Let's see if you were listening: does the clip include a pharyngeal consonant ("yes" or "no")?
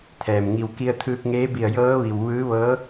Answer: no